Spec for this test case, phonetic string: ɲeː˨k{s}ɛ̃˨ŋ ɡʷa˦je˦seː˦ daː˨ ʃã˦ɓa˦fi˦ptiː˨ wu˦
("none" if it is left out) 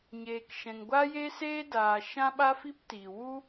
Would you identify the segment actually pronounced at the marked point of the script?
ʃ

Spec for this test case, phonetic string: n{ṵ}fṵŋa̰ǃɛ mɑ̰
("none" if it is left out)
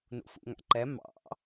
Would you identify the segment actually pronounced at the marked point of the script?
ṵ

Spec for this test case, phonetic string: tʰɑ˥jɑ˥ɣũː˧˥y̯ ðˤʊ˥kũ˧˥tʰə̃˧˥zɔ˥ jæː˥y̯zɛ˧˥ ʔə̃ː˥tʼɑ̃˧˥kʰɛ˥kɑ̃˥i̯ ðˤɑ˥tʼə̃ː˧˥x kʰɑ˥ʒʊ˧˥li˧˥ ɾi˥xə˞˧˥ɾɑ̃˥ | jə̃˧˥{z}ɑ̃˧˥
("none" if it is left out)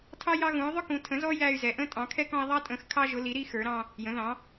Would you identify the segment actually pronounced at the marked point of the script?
ð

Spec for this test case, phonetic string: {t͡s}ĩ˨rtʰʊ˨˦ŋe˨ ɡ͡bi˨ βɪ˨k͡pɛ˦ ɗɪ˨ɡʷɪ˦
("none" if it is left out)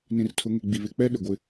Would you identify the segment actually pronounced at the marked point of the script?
n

